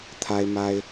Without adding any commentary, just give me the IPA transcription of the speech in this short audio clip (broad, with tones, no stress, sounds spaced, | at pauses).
t̪ʰ a˥ ɪ̯ m a˥ ɪ̯